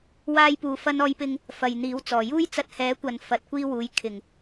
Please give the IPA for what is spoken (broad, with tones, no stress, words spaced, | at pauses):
waː˥jpuː˧ fɐ˥nɔː˥jpɪ˥ŋ | fɐ˨jn̪iː˨˥wt͡sɔː˨˩ juː˥jt͡sɐ˧t̚hɛː˨˥kʷɐ˨n fɐ˨˥t̚kʷiː˥wuː˨˥j kʰɪ˨˩ŋ